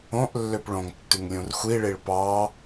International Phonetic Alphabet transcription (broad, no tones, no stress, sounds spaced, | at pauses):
õ ʔ lː ø p ɭ õ ŋ tː ʉ ŋ lʲ ũ r xʷ i ɭ i ɭ p ɑ